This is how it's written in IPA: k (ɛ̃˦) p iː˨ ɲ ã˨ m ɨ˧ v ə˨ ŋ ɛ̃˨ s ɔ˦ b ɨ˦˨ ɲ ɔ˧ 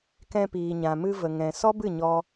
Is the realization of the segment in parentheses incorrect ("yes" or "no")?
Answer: yes